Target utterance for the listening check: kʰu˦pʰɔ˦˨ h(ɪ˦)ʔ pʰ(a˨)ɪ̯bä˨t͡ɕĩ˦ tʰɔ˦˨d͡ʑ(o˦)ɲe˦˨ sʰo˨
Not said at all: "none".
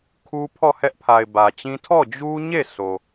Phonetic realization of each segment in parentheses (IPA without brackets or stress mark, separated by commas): ɛ˦, a˨, u˦